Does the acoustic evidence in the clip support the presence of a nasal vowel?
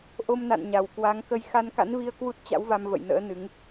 no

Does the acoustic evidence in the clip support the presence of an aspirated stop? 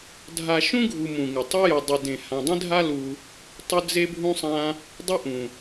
no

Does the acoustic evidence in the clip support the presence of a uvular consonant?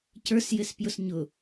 no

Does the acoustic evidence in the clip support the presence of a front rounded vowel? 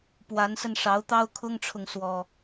no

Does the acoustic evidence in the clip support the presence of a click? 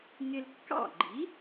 yes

